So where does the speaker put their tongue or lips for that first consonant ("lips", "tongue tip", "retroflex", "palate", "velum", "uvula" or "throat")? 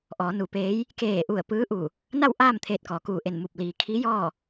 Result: throat